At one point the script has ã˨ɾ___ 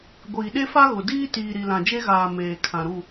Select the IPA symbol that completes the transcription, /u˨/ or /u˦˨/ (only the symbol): u˦˨